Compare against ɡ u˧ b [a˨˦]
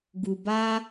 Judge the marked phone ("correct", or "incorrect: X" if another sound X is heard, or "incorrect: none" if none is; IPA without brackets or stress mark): incorrect: a˦